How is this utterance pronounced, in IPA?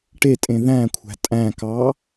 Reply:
ʈ e tʼ ẽ ð æ̃ kʷʰ æ̤ tʼ æ̃ k ɑ

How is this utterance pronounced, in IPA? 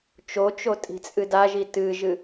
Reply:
t͡ʃ o t͡ʃ o tʼ i̤ t͡sʼ ɨ d a ʒ i t ɨ ʒ ɨ

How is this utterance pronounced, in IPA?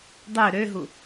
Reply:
dˤ ø ɾ ø ɦ u

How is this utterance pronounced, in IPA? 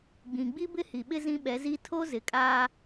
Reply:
ɡ͡b ĩ˨ ɡ͡b i˦ b ɪ˦ h i˨ ɓ ɪ˦ z ĩ˦ ɓ ɛ˨˦ z i˦ tʰ o˦ z ɪ˨ kʼ aː˦

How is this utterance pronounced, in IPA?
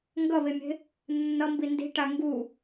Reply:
ŋ ɡ ʌ β e mʲ e̤ | nː ʌ m b i n d i̤ ʈ a ŋ ɡ u

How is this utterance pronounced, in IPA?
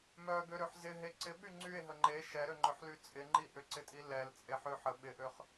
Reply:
m œ ɡ ø ɾ ø ħ z ɪ ɦ e ǀ ɪ ɓ y ŋ͡ǀ y e̯ ɦ ə ŋ͡ǃ e ʃ ɛ ɾ ø ŋ͡ǃ œ ħ l y t͡sʼ ɪ ŋ͡ǃ i ʔ ʏ ǀ ɪ tʼ i l ɛ l t͡sʼ e ħ ø ħ ə ɓ ɪ ʔ ø χ

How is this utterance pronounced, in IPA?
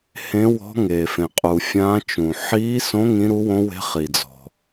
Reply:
h ẽ˧˥ w ɔ̤˧˥ ŋ e˩ f ẽ˩ qʼ u˩ fʲ ãː˧˥ t͡ʃ ũ˩ ħ iː˧˥ s õ˧˥ ŋ ĩ˧˥ ɾ u˧˥ w õ˧˥ w e̤˧˥ χ i˩ d͡z ɔ̤˩

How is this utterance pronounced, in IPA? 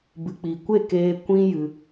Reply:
b ɨ˨ k͡p i˨ kʷ e˦˨ k eː˧ kʷ ĩ˦ j ɨ˧

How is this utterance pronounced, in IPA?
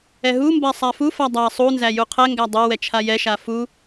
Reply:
ɛ ɦ u m b a sˤ a f u f a dˤ a sˤ u n z æ j u qʰ ɛ ŋ ɡ æ dˤ ɛ w ɛ t͡ʃʰ a j ɛ ʃ a f u

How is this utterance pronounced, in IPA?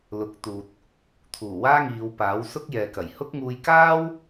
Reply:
l ʊ˨˥ k̚ t̪ uː˨ t̚ | t̪ʰ uː˨˩ w aː˥ ŋ iː˨˧ w p aː˨˥ w s ʊ˥ k̚ j ɛː˨ k ɐ˨˩ j h ʊ˥ k̚ ŋ uː˧ j k aː˥ w

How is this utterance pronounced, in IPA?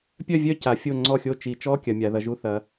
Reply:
pʲ œ˦˨ vʲ œ˦˨ c a˩˧ fʲ o˦˨ ŋ͡ǀ ɔ˦˨ xʲ o˦˨ t͡ʃ i˩˧ t͡ʃ ɔ˧˥˧ kʲ ɐ˩˧ mʲ a˩˧ ð ɐ˩˧ ʒ u˧˥˧ θ ɐ˩˧

